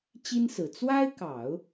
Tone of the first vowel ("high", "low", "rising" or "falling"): high